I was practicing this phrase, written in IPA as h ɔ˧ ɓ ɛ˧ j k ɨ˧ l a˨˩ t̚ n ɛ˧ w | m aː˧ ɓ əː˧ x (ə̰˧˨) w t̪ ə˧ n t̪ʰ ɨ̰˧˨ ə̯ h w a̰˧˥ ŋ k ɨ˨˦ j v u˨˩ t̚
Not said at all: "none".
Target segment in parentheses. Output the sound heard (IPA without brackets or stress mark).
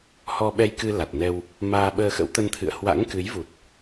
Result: ə̰˧˥